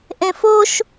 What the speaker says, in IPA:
ʔ ẽ f o ʃ

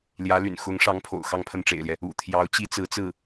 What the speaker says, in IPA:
l j ä˧˥ l y̰˨˩ n x ʊ˧˥ ŋ ʂ ɑ˧˥ ŋ pʰ o̰˨˩ ʊ̯ x ɑ˥˧ ŋ pʰ ə˥˩ n ʈ͡ʂ ḛ˨˩ ɪ̯ l j ɛ˦ | ṵ˨˩ t̪ʰ j ɑ˧˥ ʊ̯ t͡ɕ i˥ t͡s ɹ̩˧˥ t͡s ɹ̩˥˩

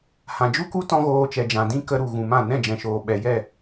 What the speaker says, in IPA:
h ã˨ d͡ʒ u˦ k u˦ t ɔ̃˦ ɣ oː˧ t͡ʃ ɛ˨ d͡ʒ ã˨ d ĩ˦ k ə˧ ɾ u˨ ɣ ũ˨ m ã˦˨ n ɛ̃˦˨ d͡ʒ ɛ̃˨ ʃ oː˨ ɓ ɛ˨ j ɛ˦˨

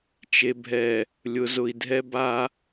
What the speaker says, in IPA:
t͡ʃ e˨ bʱ ɛ˨ | lʲ ʊ˨ z ʊ˨ i̯ dʱ ɛ˦ b a˦

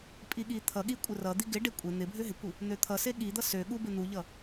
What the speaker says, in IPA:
pʼ i ɠ i t̪ʰ ʌ ɠ i kʷʼ ɪ r ʌ d̪ i ɡ ɪ ɖ e kʷʼ e n̪ ɪ bʱ ø ɦ ɪ kʷ i | n̪ ø t̪ʰ ʌ s e ɠ i d̪ ʌ s ø ɠ u b ɪ n̪ u ʎ ʌ

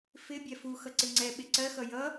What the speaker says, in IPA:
f ɪ bʲ ɛ f u x ʌ ǀ ɪ ŋ͡ǀ ɛ ɓ ɪ ǀ ɜ x ʌ j ʌ

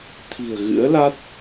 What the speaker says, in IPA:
t̪ʰ i̤˨˩ ə̯ ɣ ɨ̰˧˥ ə̯ l a˦˥ t̚

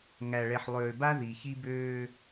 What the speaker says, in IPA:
ŋ æ˨ ɭ ɛ˨ ħ lˠ øː˨ b a˦ ð i˨ ç i˦ b øː˦

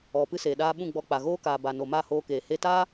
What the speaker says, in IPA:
ɔ˨ p ɨ˧ s eː˨ ɗ aː˧ ɓ ũ˦˨ ɡ͡b ɔ˧ k͡p a˨ ɣ oː˦ k aː˨ b a˨ n o˨ m a˦˨ h oː˧ k eː˨ h e˦ t aː˦

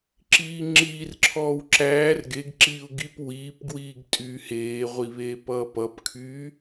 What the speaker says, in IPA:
ǁ iː ŋ͡ǁ iː r ǁʰ ɔː w ǁ æː r ɡ e ɡ ǁ iː ʊ̯ ɡ i p w iː p ɡ w iː ɡ tʼ yː h eː ʁʷ i β eː p ʌː p ʌ p kʰ yː

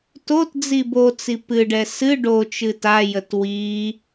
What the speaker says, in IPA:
t o t d͡z i b o t͡s i p ɨ ɖ ɛ s ɨ ɖ o t͡ʃ ɨ t a j ə t w i

